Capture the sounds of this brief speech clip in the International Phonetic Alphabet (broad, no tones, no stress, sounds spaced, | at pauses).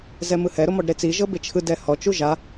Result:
z ɛ m ɯ h ɛ ɾ o m ɔ ɖ ɾ e t͡s i ʒ ɤ b e t͡ʃʰ ɯ d ɛ h ɔ t͡ʃ u ʒ a